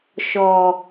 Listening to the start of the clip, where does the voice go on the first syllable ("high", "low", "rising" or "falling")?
low